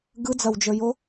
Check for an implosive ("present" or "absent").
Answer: absent